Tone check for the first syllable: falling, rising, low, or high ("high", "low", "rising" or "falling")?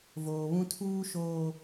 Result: low